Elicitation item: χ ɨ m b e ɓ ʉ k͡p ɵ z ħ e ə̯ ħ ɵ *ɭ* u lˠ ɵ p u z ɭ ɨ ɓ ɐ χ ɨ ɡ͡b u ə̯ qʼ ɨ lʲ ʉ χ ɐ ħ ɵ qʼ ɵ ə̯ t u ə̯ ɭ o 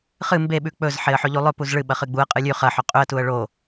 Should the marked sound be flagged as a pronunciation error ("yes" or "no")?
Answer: yes